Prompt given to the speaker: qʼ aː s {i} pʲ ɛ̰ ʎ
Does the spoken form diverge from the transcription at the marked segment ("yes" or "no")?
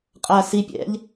no